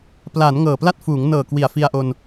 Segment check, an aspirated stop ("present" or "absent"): absent